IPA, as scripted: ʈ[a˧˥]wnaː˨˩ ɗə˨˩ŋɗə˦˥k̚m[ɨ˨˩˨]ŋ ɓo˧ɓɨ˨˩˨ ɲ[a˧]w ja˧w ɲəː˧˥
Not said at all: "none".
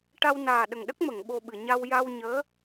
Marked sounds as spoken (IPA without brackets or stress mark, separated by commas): a˧, ə˨˩˨, a˧